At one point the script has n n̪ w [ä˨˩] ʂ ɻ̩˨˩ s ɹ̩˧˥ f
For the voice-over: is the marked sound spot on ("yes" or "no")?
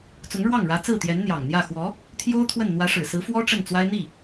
no